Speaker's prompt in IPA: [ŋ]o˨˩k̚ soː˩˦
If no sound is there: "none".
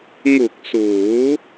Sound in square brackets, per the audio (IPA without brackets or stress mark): ŋ